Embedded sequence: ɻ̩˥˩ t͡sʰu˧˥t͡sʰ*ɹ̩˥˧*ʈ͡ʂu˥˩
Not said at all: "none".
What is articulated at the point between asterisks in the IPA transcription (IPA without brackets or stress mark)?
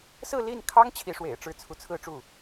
ɹ̩˥˧